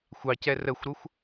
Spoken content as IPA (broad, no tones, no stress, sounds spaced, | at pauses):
xʷ ɑ c ɛ r ə xʷ ɾ ʊ xʷ